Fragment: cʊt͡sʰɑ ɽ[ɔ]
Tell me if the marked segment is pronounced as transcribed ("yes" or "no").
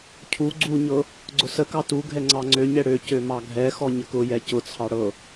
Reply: no